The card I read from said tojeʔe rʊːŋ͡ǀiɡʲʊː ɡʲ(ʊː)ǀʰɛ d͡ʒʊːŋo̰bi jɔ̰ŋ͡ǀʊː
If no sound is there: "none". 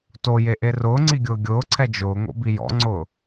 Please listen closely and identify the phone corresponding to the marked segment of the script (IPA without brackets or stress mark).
ʊː